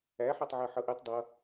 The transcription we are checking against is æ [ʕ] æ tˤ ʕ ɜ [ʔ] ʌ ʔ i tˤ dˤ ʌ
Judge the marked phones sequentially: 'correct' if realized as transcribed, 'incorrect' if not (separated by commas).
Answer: incorrect, incorrect